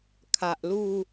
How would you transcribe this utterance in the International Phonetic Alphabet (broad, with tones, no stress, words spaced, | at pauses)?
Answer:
kʰa˨ʔlu˥˧